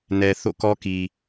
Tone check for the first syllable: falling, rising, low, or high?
low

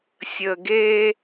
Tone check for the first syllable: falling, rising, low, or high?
low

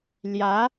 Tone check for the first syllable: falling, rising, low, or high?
rising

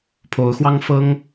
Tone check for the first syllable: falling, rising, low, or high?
rising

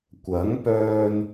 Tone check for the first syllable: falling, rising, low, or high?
rising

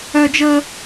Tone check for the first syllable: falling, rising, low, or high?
high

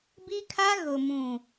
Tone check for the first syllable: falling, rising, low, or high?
high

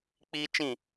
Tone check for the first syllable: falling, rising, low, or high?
high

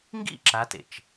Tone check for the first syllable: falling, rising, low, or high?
falling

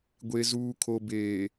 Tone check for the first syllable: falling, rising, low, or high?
low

